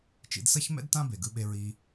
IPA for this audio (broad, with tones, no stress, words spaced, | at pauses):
t͡ʃḭ˧dsʌ˥çmɛ̰˥d tã˥be˩ɡɯ˧ɓe˧ ɹi˧